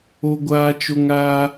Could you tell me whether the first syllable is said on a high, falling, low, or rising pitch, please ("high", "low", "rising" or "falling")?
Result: high